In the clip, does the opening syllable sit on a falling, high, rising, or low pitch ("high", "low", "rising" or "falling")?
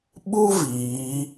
high